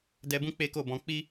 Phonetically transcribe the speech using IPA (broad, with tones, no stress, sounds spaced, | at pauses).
d ɛ˧ b ũ˦ k͡p e˦ k o˦˨ b ɔ̃˧ k͡p i˦